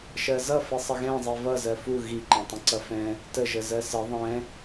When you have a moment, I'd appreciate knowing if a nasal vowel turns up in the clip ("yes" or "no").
yes